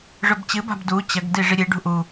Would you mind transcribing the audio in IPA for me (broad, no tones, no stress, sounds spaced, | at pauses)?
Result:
ʐ ɵ b t͡ɕ ɨ b a̤ b d u t͡ɕ ɐ ɡ d i ʐ i ɾʲ e ɖ ṳ ʔ u